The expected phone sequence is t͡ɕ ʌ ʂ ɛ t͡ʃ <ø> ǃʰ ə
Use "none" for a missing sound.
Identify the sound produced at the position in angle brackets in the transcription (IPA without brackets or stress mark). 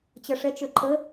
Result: ø